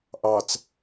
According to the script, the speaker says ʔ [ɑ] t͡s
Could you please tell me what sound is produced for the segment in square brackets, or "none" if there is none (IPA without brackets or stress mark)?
ɑ